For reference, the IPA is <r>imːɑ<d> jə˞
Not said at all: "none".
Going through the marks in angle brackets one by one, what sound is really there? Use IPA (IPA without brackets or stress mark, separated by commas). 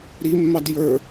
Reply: ɾ, d